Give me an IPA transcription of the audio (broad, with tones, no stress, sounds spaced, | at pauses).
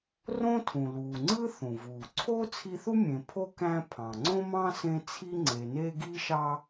r õ˥ tʰ ũ˩ l uː˩ ŋ͡ǀ ɯ˥ θ ũ˩ v uː˩ ǀʰ o˥ t͡sʰ i˦ θ u˥ mʲ ẽ˨ pʰ o˥ k æ̃˦ pʰ ɑ̃˩ ŋ͡ǀ õ˥ m ɑ̃˥ s ẽ˦ t͡sʰ i˦ ŋ͡ǀ e˨ n e˦ ɡ i˥ ʃ ɑ˥